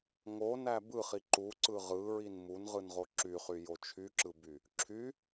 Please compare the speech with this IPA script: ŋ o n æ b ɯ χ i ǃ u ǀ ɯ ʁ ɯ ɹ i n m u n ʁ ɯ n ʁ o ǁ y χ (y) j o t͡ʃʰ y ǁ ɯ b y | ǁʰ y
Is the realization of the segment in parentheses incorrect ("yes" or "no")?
no